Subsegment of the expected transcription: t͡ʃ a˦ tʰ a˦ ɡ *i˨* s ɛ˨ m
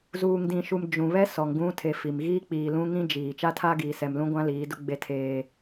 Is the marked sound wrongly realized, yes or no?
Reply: yes